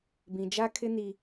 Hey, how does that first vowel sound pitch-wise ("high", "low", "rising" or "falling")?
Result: low